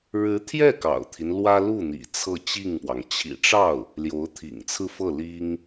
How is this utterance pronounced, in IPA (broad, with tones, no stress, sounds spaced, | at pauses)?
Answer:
ɻ ɻ̩˧˥ t̪ʰ j ɛ˥˩ k ɑ̰˨˩ ʊ̯ t̪ʰ i˦ n l w ä˥ l u˥˩ n̪ ḭ˨˩ t͡sʰ ɤ˥˧ t͡ɕ i˥˩ ŋ p w ɑ˩ ŋ t͡ɕʰ ḭ˨˩ ʈ͡ʂ ɑ˥˩ ʊ̯ | l j o˧˥ ʊ̯ t̪ʰ ḭ˨˩ ŋ t͡sʰ ɹ̩˥˧ f ɤ˥˩ l i˥ ŋ